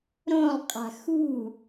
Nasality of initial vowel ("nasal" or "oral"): nasal